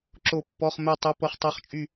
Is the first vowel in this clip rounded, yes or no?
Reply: yes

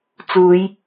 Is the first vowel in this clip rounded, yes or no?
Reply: yes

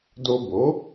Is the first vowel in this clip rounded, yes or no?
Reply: yes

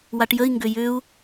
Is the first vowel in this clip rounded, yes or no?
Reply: no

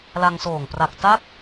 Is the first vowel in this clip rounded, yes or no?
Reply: no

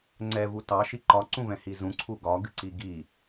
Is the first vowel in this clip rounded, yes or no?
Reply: no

